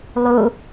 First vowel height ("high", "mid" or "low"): high